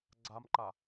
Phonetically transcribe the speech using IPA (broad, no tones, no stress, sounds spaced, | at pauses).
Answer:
ɡ͡ǀ a m ǃ a